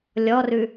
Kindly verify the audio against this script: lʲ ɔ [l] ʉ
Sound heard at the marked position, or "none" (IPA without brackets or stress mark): r